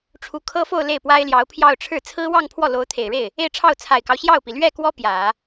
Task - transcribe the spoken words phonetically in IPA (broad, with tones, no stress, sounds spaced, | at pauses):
ʈ͡ʂʰ u˧˥ kʰ ɤ˥ f o˥˧ ʊ̯ l e˥˩ ɪ̯ p w a˥ ɪ̯ l j ɑ˧˥ ʊ̯ pʰ j ɑ˥˧ ʊ̯ ʈ͡ʂʰ ɻ̩˥˩ t͡sʰ ɹ̩˥ w ɑ˥˧ ŋ pʰ w ɔ˥˩ l o˧˥ ʊ̯ t̪ʰ e˨˩ ɪ̯ ɻ e˥˩ ɪ̯ | e˥˧ ɪ̯ ʈ͡ʂʰ ɑ˥˩ ʊ̯ t͡sʰ a˨˩ ɪ̯ k ɑ˦ ʊ̯ ɕ j ɑ˥˩ ʊ̯ p i˩ l ɥ ɛ˥˩ k w ɔ˥ p j ä˨˩˦